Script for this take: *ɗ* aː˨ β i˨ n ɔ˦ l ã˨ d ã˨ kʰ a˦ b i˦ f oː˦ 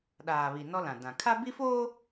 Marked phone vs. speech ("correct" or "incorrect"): correct